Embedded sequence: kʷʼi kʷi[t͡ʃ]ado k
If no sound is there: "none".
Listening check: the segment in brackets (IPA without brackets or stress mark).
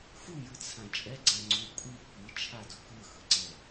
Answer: t͡ʃʰ